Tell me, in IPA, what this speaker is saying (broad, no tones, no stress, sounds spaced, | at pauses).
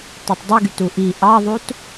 t e tˤ dˤ ɯ ɡ y t u ʔ i ʔ ɑ ðˤ u t